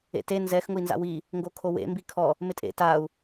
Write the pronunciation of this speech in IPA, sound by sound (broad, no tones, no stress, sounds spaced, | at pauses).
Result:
ḛ t e n z ɛ x ŋ ʊ i̯ n z a̰ w i | ŋ ɡ o kʰ o w ḛ m b i kʰ ɔ | m ɪ tʼ ḛ t a u̯